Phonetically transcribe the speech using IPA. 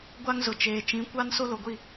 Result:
ɡʷ a˦ ŋ z ʊ˨ t͡ʃ eː˨ t͡ʃ ĩ˨˦ kʷ a˦ n s o˦ l o˨ ɡʷ i˦˨

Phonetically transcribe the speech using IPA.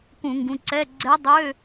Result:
k ũ˧˩˧ ŋ ɡ ũ˩˧˩ ǀ ɛ˧˥˧ ɡ͡ǀ ɛ˧˥ dˤ ø˧˥˧

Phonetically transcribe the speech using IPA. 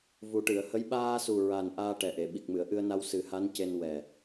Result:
v u˨˩ ʈ ɨ˨˩˨ ə̯ h ə˧˥ j ɓ aː˧ s u˨˩ ɹ a˨˩ n ʔ aː˧ ʈ ɛ˨˩ ʔ e˨˩˨ ɓ i˨˩ k̚ m ɨ˨˩˨ ə̯ ʔ ɨ˧ ə̯ n a˧ w s ɨ˨˩˦ h a˧˥ n c e˧ n w ɛ˨˩

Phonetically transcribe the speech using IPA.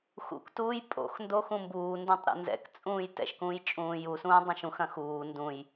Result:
x ṵ k t uː j pʼ o̰ x n d o x ũ m b uː n d ũ tˤ ɾ ɛ̰ n z ɛ̰ k t͡sʼ ũː j t ɛ̰ ʃ k ũː j t͡ʃʼ ũː j u s ũː dˤ ɐ̃ ʃ ũ x ɐ̃ x uː n d ũ j

